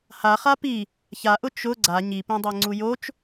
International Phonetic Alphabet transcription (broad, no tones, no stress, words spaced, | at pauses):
haχa pi | çaʔʊ t͡ʃʊ ɡ͡ǀa ɲipĩdˤɛ ŋ͡ǀujot͡ʃ